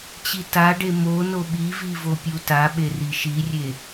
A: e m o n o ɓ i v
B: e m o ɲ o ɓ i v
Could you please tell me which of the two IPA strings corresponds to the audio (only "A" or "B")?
A